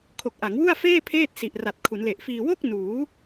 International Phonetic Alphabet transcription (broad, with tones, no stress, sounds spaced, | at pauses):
kʰ o˨˩ k̚ ʔ a˩˦ ŋ w u˥˩ a̯ f eː˥˩ pʰ eː˥˩ t̚ s i˨˩ ʔ r a˨˩ t̚ kʰ u˩˦ n l e˨˩ ʔ f iː˧ w o˥˩ k̚ n uː˩˦